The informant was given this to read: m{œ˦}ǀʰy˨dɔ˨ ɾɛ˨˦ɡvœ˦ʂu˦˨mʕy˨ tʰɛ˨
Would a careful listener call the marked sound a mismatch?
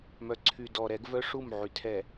yes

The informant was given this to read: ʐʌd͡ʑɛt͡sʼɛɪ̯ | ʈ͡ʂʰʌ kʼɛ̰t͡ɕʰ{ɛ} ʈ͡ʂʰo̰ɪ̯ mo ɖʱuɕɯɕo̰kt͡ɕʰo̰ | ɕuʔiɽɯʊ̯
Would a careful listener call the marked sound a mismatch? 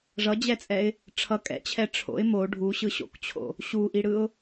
no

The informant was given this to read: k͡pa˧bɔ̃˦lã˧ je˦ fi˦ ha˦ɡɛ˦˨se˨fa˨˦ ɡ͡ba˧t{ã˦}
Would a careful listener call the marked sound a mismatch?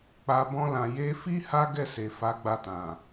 yes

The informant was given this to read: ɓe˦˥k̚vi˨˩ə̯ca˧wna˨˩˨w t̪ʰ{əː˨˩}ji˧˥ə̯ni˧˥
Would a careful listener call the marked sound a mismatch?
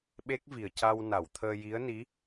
yes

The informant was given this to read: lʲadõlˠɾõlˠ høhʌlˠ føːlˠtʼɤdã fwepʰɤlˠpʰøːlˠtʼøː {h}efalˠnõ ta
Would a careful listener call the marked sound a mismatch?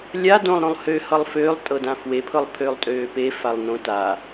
yes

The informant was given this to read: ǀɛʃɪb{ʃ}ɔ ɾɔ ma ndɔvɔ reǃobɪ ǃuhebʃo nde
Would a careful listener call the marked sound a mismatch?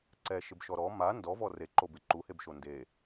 no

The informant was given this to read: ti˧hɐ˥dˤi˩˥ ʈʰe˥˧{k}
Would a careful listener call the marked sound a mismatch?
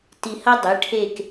no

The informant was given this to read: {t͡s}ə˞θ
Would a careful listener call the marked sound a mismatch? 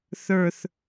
yes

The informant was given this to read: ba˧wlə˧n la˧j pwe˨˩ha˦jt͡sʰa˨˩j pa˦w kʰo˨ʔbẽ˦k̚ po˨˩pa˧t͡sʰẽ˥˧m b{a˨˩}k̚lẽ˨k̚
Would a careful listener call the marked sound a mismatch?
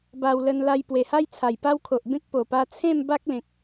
yes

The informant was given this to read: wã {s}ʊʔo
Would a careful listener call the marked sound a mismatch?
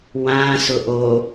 no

